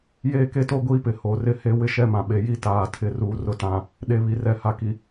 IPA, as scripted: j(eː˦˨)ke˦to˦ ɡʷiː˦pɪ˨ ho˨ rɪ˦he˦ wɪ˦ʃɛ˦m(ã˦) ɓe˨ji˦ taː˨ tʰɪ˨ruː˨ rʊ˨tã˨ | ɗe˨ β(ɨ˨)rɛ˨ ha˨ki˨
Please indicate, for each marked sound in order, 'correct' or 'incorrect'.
correct, incorrect: ã˨, incorrect: i˨

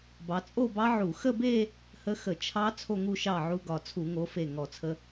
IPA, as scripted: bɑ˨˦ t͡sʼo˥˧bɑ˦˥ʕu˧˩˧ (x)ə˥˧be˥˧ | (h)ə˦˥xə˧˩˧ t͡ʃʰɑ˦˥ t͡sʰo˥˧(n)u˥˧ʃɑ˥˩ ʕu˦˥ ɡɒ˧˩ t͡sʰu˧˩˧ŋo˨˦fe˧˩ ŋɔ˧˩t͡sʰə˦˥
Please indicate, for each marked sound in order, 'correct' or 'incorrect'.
correct, correct, incorrect: ŋ

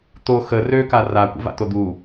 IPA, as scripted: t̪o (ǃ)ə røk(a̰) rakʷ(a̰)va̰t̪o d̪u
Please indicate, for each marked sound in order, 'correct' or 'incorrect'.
incorrect: x, incorrect: a, incorrect: ə̰

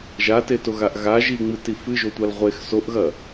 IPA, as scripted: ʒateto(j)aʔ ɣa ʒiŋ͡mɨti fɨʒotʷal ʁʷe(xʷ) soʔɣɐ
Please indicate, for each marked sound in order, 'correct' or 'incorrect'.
incorrect: ɣ, incorrect: x

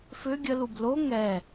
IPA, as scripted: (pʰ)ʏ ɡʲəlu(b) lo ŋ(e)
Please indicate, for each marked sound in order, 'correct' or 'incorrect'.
incorrect: f, correct, incorrect: ɛ

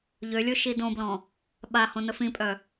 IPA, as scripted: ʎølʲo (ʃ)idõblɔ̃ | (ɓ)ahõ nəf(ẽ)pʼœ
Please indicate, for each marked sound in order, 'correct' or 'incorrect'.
correct, correct, incorrect: ĩ

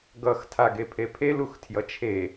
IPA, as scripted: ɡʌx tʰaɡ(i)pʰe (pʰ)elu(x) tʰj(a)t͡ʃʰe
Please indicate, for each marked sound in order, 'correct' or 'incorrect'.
incorrect: e, correct, correct, incorrect: ʌ

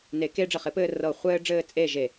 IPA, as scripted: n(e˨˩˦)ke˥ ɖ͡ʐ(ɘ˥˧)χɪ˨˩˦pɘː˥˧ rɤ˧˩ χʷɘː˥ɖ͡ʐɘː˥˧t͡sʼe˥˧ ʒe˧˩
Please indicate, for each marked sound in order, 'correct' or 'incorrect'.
correct, incorrect: ɘ˧˩

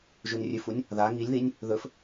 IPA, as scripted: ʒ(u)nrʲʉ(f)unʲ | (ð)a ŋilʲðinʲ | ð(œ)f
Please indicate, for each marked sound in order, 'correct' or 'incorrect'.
incorrect: ʉ, correct, correct, incorrect: ɵ

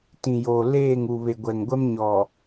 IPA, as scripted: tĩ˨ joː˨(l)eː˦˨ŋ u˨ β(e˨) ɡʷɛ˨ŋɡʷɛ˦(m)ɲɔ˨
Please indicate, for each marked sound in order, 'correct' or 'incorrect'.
correct, correct, correct

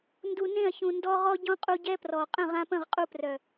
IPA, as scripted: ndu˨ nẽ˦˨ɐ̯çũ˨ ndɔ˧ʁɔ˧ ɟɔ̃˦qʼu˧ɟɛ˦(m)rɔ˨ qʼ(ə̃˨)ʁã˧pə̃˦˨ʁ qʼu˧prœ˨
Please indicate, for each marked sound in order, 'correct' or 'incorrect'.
incorrect: p, incorrect: ə̃˦˨

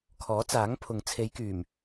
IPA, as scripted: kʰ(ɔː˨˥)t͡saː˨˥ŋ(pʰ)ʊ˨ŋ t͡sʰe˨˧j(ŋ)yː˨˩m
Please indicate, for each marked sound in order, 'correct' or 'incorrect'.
correct, correct, incorrect: k

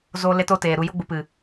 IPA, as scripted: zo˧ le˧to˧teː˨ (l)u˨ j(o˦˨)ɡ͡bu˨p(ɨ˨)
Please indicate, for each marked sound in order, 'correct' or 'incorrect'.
incorrect: ɾ, incorrect: o˧, correct

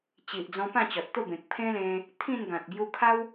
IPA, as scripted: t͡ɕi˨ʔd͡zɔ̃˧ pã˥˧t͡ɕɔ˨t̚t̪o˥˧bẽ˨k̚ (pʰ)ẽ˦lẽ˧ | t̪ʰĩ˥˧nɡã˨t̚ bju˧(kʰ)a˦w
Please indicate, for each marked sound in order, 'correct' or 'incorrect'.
correct, correct

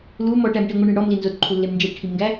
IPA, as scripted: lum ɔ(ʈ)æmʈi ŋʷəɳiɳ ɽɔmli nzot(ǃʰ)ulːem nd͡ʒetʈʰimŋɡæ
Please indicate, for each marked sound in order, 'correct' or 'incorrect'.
correct, correct

